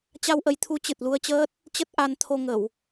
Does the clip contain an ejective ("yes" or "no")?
no